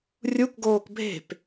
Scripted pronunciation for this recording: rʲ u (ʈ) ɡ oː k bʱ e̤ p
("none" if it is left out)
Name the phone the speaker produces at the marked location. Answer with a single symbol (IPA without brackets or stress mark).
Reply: k